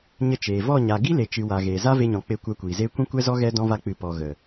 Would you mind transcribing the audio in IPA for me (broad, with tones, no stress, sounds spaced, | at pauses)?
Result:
ɲ ə˧ t͡ʃ eː˨ v ɔ˦˨ ɲ a˨ ɡ i˦ l e˨ t͡ʃ ɨ˨ w a˨ ɣ eː˨ z a˦ v e˧ ɲ ɔ̃˨ k͡p e˧ kʷ ɛ˧ kʷ iː˨ z eː˦ kʷ ĩ˦ kʷ ɛ˦ z ɔ˦ ɣ ɛ˦ d ɔ̃˦ v a˦ k͡p ɨ˧ p ɔ˨ ɣ ə˨